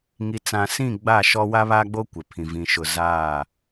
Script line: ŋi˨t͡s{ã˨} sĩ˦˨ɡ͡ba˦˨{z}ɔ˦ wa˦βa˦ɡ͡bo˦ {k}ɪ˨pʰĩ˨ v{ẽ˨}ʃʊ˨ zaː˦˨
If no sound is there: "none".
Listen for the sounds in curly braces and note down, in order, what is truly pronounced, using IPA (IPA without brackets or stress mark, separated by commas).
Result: ã˨, ʃ, kʷ, ĩ˨